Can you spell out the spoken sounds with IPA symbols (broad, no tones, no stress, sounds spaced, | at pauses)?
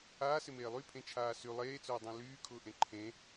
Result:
aː s ɪ m eː lˠ y pʰ ẽ t͡ʃʰ aː s y lˠ eː t͡s ʊː dˤ ẽ l yː kʰ ʊː ʔ ẽ ǃʰ ẽ